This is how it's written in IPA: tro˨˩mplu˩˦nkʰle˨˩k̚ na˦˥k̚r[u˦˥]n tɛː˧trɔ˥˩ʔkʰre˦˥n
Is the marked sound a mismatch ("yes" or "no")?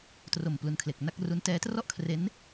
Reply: no